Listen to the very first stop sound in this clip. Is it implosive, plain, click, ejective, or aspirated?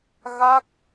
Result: plain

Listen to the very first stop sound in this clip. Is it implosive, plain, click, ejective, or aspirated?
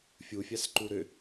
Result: click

